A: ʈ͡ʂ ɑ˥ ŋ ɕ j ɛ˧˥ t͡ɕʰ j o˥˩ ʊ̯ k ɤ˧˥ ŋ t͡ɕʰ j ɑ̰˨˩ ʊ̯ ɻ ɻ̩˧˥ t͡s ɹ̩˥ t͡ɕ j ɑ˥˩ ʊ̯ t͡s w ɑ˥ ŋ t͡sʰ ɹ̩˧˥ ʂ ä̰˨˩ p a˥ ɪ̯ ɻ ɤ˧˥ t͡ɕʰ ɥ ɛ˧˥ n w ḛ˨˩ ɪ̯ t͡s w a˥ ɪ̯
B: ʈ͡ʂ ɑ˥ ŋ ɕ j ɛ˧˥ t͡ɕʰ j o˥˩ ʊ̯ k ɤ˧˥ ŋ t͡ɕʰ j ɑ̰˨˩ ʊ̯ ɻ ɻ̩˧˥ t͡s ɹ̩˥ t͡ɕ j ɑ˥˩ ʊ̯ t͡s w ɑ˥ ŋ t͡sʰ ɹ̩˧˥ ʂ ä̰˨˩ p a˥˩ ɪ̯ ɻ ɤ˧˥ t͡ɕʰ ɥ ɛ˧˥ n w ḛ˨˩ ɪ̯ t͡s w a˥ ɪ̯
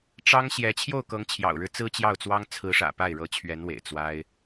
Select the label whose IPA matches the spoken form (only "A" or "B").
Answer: B